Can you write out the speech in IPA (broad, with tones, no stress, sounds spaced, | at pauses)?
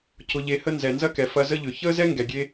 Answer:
c ʊ˨ ʎ e˨ h ə˧ n z ɛ˨ n z ɐ˦ k ɛ˨ f ɐ˧ z ə˦ ʎ ʏ˨ ç əː˦ z ɛ˦ ŋ ɡ ɛ˨ ɡʲ e˦